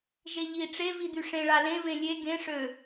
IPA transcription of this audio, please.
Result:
ʒeʎi ʈ͡ʂe vid̪yʂẽ ɭalẽ βẽlʲe ɡẽ ʂø

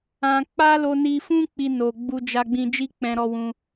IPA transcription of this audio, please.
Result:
ã˧k͡pa˦ lo˧ni˧fũ˦ k͡pi˧no˨ ɡ͡bu˧d͡ʒa˧ɡ͡bĩ˧ d͡ʒi˦k͡pɛ̃˧ɾɔ˧wũ˧

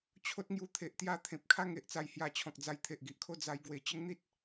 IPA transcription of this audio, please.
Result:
t͡ɕʰo˦t̚ŋju˧t̪ʰe˨ʔt̪ja˦ t̪ʰẽ˨p̚kʰa˥˧ŋe˨ʔ t͡sa˧jhja˧t͡ɕʰɔ̃˨k̚d͡za˧j t̪ʰe˨ʔɡi˨ʔkʰo˥˧ d͡za˦jɡwe˧ t͡ɕə˦ŋn̪i˦t̚

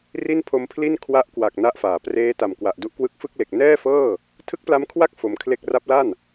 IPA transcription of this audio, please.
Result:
ri˥˩n pʰo˧mpʰli˥˩n kʰwa˦˥ʔkwa˨˩k̚ na˦˥ʔfaː˩˦ preː˦˥ta˨˩m kwa˨˩ʔdu˦˥ʔkwɯ˦˥k̚ fɯ˥˩k̚le˨˩k̚ nɛː˥˩fɤː˥˩ | tʰɯ˦˥k̚pla˦˥mkʰwa˥˩k̚ fo˧mkʰle˥˩k̚ ra˦˥p̚la˥˩n

